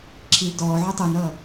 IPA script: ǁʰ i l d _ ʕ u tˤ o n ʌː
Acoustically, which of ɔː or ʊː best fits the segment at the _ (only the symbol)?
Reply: ɔː